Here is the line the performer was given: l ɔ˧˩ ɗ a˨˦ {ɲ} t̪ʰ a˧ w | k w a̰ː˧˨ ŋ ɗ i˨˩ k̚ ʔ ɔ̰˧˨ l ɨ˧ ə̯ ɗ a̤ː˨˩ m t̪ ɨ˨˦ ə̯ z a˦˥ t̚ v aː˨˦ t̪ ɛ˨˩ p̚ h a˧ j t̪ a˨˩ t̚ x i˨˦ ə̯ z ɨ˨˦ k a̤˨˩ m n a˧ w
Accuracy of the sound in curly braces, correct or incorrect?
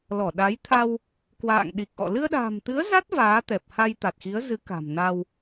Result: incorrect